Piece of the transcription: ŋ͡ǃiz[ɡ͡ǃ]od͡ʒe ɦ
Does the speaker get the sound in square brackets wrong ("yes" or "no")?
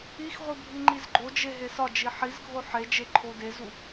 no